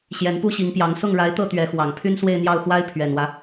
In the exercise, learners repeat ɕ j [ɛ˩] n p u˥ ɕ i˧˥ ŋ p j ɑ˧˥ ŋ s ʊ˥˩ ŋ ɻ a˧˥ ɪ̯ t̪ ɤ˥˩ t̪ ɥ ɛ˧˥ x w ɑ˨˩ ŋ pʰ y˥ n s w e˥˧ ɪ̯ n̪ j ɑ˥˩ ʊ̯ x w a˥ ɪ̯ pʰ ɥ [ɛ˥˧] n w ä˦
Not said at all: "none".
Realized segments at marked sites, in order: ɛ˧˥, ɛ˨˩

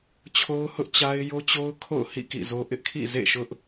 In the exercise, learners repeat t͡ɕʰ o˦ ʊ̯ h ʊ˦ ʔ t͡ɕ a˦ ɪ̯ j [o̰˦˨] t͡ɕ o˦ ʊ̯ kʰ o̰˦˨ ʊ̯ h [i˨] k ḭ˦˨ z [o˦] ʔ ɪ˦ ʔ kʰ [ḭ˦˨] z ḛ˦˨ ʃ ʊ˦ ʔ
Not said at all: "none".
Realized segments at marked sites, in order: o˦, ḭ˦˨, o˦, ḭ˦˨

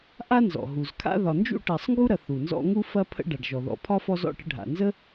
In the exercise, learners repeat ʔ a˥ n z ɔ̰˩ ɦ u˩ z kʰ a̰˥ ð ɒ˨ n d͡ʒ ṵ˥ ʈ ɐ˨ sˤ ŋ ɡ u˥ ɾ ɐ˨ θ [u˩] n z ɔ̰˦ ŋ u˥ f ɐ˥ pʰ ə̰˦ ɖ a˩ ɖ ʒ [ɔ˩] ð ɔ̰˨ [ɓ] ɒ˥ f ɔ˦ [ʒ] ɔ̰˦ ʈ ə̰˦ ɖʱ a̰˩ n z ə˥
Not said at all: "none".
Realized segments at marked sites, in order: u˩, ɔ˩, pʰ, z

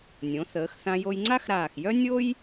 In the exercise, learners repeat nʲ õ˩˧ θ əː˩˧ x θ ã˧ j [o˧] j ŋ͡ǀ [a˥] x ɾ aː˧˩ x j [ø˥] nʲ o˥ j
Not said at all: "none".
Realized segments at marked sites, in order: o˧, a˥, œ˥

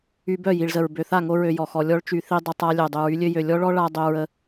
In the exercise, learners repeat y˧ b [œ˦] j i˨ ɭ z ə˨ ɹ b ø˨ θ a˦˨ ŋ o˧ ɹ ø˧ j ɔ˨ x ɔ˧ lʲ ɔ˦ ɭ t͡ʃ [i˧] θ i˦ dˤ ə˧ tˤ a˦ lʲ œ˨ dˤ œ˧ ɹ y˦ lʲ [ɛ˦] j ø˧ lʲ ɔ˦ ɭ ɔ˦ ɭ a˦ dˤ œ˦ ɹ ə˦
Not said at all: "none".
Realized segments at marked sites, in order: œ˦˨, y˧, ø˦

